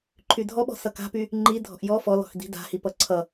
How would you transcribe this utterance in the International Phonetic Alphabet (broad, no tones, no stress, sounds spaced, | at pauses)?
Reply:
ǃʰ y dʱ ɔ ɓ ɔ̤ s ʌ k a̤ p y | ŋ͡ǃ i dʱ ɔ̤ ʔ j ɔ f ɔ l ɔ̤ x d i̤ d a̤ h i p ʌ ǀʰ ʌ